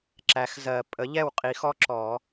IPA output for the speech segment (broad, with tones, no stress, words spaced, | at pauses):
ǁæ˩˥xzɜ˨˩˦ pʼə˩˥ʎɛ˥˩wqʼi˨˩˦xɔ˦ ǁɔ˨˩˦